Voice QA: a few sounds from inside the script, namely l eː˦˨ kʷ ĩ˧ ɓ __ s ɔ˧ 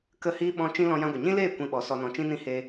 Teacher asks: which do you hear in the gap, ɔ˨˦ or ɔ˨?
ɔ˨˦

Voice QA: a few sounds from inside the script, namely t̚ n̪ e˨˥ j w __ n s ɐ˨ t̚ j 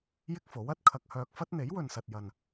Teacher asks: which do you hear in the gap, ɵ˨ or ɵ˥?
ɵ˨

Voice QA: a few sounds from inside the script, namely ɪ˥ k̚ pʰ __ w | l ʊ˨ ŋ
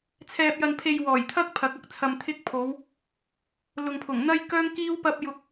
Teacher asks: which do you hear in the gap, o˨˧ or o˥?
o˨˧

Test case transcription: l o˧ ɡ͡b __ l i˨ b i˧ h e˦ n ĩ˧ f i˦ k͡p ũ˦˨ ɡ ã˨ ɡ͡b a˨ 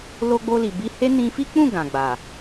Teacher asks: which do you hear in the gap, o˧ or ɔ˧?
o˧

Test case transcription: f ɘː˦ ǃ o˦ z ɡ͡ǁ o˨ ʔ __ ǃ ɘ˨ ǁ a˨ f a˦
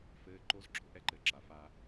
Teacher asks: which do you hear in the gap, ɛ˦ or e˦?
ɛ˦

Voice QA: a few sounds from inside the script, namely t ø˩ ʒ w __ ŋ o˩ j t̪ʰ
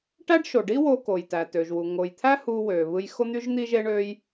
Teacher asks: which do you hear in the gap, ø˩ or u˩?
u˩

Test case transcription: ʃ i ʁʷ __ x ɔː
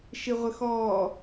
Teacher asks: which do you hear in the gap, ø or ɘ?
ɘ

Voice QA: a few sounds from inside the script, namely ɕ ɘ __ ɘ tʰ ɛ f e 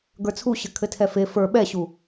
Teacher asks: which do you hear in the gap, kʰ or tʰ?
kʰ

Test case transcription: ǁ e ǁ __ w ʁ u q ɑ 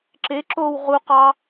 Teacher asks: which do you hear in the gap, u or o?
o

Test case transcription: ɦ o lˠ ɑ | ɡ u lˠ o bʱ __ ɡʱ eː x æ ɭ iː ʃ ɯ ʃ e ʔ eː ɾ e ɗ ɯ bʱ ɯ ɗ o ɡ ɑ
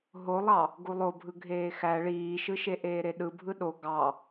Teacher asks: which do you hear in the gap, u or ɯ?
ɯ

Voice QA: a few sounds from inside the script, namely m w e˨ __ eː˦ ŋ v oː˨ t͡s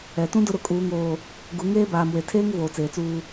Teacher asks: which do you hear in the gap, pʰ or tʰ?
tʰ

